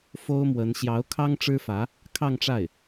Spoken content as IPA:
f o˥ ʊ̯ m w ə˧˥ n ɕ j ɑ˧˥ ʊ̯ kʰ ɑ˥ ŋ ʈ͡ʂ ɻ̩˥ f ä˧˥ | kʰ ɑ˥˧ ŋ ʈ͡ʂ a˥˩ ɪ̯

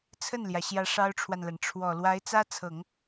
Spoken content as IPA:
t͡sʰ ə˥˩ n l j ä˩ ɕ j ä˧˥ ʂ ɑ˥ ʊ̯ ʈ͡ʂʰ w a˨ n l a˩ n ʈ͡ʂʰ w ɔ˨˩ l w a˧˥ ɪ̯ t͡s ä˥ t͡sʰ ɤ˨˩˦ ŋ

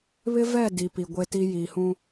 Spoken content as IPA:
β ɪ˦ v ɛ˦˨ d i˨ p i˨ ɡʷ e˦ t i˦ j iː˨ h ũ˦

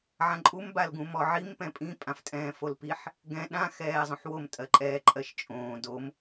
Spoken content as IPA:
ʕ ã ǃʼ u m b a l ɡ ũ m ɔ ʕ i m p ɛ̃ pʼ ĩ pʼ ã f tʼ ɛ̃ː f o l p i ħ | ɡ ɛ̃ ɗ ã x ɛː zˤ õ ħ w o m tʼ ɜ ǃʼ ɛː ǃʼ ɜ ʃ t͡ʃʼ õː d o m

